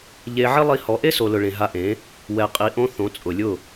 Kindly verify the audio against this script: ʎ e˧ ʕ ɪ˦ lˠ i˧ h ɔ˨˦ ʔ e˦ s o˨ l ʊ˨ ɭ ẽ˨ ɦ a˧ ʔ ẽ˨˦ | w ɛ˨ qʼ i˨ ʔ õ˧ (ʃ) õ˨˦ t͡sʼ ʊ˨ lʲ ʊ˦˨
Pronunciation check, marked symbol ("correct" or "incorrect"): incorrect